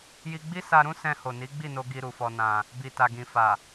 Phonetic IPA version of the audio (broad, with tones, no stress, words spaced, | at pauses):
ji˧ɡ͡bi˦sa˧ɾũ˦ sɛ̃˧ ho˨ni˨˦ɡ͡bi˦˨no˧ ɡi˧ɾu˨fɔ˧ nã˧ | bi˨ ta˨ ɡĩ˨fa˨